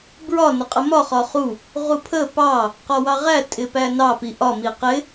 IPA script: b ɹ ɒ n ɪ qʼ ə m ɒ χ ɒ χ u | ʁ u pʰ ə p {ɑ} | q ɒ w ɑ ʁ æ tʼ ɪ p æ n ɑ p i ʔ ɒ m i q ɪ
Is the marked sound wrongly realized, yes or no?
no